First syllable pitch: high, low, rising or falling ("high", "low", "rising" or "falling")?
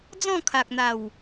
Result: falling